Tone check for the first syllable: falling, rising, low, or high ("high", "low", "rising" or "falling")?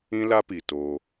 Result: high